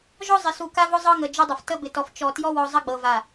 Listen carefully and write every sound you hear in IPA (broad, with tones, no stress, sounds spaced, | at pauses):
ʒ ɔ˦ zˤ ɪ˨ s u˨ k a˦ v ʊ˦ zˤ ɤ˦ ŋ ə˨ d͡ʒ ʊ˦ dˤ ɘ˨ f t ə˦ b ɪ˨ t ɔ˨ f t͡ʃ ɔ˨ t j ɔ˦ w ɔ˨ zˤ ə˦ ɡ͡b ɤ˨ v a˨